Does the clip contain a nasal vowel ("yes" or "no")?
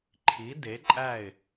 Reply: no